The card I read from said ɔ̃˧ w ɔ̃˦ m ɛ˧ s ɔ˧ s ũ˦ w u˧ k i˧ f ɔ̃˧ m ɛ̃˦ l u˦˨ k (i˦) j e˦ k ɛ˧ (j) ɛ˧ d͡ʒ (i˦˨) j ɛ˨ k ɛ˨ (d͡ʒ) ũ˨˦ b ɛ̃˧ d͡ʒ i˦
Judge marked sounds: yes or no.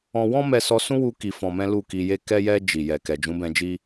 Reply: no, yes, no, yes

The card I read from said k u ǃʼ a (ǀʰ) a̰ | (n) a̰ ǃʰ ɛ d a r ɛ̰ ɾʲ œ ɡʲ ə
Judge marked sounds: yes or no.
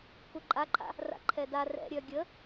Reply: no, no

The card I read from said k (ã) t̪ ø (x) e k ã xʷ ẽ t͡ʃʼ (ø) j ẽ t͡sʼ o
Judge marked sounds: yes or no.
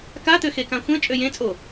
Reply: no, yes, yes

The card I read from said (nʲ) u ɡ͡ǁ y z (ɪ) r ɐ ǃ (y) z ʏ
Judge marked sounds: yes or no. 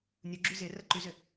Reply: yes, yes, yes

